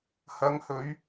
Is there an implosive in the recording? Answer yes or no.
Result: no